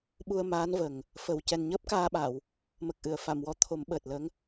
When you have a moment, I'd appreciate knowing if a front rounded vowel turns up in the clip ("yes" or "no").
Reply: no